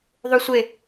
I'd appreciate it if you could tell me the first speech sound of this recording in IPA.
ðˤ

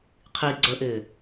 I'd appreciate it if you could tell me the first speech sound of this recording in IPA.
qʰ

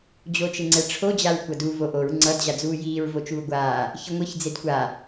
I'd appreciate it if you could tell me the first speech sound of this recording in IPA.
d͡ʑ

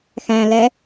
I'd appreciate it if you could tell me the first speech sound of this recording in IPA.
x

